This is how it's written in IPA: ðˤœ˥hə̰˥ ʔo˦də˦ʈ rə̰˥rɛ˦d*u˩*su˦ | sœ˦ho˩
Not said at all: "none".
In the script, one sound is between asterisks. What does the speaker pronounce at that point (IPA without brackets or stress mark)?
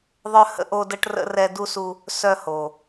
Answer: u˥